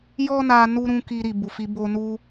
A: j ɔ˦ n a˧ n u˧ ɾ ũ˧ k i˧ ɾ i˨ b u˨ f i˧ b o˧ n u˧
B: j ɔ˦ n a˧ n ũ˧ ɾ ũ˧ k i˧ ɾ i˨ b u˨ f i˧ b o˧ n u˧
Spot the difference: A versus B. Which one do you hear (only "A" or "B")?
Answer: A